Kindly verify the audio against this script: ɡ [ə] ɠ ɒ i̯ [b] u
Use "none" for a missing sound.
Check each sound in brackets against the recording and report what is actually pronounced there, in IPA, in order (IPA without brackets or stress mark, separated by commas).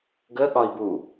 ə, b